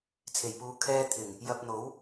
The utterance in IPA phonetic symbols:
t͡sʰ e˨˩ j p uː˨˧ kʰ ɛː˧ t̪ʰ ɪ˨˩ ŋ | j ɐ˧ p̚ n̪ o˨˥ w

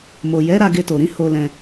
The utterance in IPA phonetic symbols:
m o˨ j ɛ˨˦ ɾ a˧ ɡ e˧ t o˨ ɾ ĩ˨˦ h o˧ l ɛ̃˧

